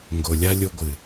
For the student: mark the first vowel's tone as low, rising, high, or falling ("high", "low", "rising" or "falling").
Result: low